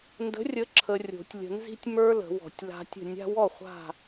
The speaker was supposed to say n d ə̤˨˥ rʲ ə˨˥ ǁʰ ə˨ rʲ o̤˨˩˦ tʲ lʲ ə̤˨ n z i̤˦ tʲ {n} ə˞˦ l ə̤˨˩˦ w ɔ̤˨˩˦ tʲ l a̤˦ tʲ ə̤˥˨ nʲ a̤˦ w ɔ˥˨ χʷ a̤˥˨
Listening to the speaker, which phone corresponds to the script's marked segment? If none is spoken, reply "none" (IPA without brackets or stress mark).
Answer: m